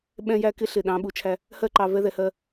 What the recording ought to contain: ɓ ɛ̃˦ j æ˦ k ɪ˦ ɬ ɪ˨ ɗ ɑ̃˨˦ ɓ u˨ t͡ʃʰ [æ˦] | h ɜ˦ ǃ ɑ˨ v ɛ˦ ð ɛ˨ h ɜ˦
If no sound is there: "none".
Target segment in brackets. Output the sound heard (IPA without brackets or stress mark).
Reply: æ˦